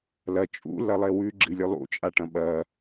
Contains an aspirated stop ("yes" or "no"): no